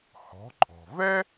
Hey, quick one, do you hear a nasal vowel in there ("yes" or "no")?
no